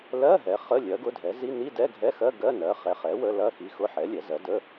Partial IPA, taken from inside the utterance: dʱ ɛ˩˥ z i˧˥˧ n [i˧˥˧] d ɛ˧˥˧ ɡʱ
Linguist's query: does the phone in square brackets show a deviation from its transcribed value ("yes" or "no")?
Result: no